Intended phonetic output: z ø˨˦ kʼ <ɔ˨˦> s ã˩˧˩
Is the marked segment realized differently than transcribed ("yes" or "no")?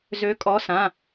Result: no